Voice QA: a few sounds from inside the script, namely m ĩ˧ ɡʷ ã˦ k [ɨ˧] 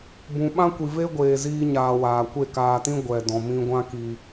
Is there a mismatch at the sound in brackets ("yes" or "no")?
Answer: yes